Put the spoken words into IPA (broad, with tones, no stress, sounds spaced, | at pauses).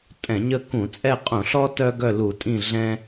tʼ ɛ̃˧˩˧ ɲ ə˦˨ k ũ˧˩˧ t͡sʼ ɛ˦˨ qʼ ũ˧˩˧ ɬ ɔ˦ t œ˦ ɡ œ˦˨ l u˧˩˧ tʼ ĩ˦˨ ɮ ɛ̃˦